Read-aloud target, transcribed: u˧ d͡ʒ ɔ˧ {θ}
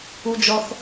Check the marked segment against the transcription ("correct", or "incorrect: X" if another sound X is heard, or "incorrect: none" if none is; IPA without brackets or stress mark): correct